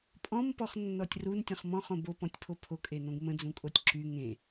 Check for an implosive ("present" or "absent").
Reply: absent